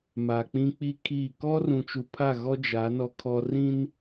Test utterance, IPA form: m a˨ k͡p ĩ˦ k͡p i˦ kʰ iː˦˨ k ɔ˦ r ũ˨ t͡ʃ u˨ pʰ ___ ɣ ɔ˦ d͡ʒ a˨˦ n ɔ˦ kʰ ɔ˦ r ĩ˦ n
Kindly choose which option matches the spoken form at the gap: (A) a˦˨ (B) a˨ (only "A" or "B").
A